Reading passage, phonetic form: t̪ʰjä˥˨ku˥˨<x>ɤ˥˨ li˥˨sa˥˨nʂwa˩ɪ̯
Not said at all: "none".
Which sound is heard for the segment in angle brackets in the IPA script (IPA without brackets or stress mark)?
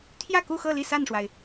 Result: x